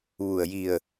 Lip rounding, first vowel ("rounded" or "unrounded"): rounded